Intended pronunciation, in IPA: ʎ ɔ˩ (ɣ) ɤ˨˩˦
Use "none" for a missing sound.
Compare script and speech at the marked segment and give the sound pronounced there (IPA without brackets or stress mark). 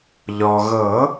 ɣ